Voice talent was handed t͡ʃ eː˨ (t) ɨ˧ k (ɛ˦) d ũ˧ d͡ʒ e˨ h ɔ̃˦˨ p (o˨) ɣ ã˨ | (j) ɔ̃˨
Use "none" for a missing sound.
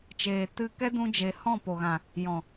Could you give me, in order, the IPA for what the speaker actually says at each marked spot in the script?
t, ɛ˦, o˨, j

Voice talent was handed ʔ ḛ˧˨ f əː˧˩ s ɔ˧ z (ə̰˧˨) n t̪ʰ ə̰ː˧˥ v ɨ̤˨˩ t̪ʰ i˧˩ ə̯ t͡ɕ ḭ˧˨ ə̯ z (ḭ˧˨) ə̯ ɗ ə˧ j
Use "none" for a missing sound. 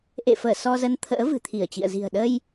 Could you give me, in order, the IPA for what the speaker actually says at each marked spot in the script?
ə˧, i̤˨˩

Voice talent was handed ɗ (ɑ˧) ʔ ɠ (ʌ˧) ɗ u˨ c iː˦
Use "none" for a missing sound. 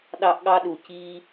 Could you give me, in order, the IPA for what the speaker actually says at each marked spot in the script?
ɑ˧, ɑ˧

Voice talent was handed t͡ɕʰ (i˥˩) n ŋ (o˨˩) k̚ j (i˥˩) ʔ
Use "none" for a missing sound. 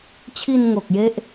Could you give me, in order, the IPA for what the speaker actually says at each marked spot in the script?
i˧, o˨˩, e˥˩

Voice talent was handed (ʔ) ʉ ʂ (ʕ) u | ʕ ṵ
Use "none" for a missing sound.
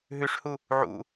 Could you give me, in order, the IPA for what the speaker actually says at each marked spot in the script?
ɦ, h

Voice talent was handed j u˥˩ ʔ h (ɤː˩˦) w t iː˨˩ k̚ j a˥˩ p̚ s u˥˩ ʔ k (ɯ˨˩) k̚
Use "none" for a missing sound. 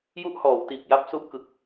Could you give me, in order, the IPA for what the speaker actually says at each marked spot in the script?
ɔː˩˦, ɯ˨˩

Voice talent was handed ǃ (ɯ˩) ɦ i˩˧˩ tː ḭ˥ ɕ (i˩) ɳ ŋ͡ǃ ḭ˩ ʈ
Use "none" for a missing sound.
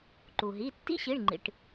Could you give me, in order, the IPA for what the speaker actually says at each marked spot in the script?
u˩, i˩˧˩

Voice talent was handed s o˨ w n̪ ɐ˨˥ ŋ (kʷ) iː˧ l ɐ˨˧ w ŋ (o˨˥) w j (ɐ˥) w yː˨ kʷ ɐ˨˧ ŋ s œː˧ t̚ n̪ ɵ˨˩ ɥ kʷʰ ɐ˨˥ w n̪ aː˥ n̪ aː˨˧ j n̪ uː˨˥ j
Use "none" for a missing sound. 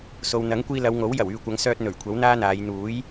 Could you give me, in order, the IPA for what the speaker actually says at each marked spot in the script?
kʷ, o˨˥, ɐ˨˩

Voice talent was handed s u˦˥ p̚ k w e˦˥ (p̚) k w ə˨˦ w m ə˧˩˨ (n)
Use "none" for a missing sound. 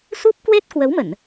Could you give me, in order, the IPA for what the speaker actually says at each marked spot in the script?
t̚, n

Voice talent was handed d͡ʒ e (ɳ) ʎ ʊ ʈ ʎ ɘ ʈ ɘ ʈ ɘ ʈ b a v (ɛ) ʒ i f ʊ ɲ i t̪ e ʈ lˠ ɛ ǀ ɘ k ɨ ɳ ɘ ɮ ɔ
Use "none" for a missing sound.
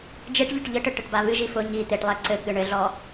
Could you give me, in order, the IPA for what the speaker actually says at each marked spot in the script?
ʈ, ɨ

